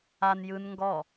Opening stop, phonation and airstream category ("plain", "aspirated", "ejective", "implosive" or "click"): plain